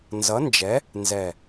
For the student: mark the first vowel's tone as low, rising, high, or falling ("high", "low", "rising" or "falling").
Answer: rising